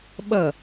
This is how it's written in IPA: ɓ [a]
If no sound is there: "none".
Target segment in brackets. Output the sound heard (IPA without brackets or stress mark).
ʌ